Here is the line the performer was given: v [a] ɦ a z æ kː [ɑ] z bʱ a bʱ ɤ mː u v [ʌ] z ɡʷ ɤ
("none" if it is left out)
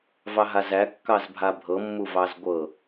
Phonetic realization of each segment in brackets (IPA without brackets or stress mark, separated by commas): ɑ, ɑ, ɑ